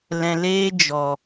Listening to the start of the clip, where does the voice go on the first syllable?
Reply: low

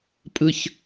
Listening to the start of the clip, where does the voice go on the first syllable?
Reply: low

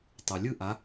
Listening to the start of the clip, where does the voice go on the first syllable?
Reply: low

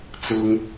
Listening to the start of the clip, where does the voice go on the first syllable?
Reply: low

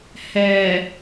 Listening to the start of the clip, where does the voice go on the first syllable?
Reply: low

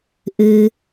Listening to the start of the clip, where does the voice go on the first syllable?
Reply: low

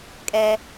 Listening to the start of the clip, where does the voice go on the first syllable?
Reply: high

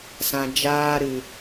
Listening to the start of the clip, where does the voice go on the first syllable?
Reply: low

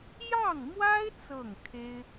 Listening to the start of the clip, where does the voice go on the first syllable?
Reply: falling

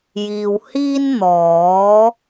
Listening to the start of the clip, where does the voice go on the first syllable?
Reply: low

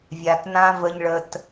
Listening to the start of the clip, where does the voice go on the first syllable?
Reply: low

